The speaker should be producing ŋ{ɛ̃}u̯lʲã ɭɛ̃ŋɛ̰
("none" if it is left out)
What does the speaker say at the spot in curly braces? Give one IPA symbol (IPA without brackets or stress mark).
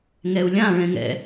ɛ